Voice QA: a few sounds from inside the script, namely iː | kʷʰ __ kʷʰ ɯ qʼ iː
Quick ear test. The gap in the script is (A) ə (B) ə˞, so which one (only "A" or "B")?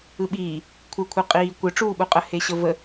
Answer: B